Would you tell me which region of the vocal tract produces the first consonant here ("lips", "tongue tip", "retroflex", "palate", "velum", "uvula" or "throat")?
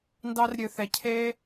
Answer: tongue tip